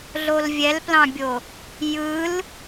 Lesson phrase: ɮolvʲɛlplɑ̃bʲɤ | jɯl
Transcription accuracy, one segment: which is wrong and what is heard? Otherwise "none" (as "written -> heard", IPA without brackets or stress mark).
ɤ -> o